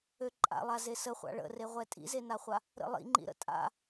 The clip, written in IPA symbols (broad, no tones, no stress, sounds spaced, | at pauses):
ø ǃʼ a̰ lˠ a z e s ə χʷ a̰ ɭ ə̰ r e ʁʷ ɛ tʼ ḭ z e n a χʷ a | ɾ ə̰ lˠ ḭ ŋ͡ǃ ḭ ɾ ə̰ tʼ a̰